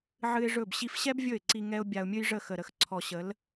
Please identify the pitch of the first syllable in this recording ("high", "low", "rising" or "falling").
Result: high